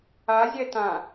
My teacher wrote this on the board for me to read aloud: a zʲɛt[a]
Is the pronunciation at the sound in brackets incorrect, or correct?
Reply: incorrect